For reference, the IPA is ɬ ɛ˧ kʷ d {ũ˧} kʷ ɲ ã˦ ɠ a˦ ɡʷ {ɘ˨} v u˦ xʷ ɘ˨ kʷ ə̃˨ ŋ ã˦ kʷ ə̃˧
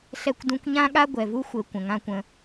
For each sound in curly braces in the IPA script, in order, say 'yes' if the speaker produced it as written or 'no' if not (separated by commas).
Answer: yes, no